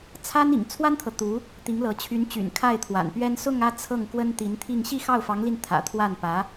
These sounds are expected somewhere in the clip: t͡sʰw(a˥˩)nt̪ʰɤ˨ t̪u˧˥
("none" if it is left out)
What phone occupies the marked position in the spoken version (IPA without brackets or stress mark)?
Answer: a˥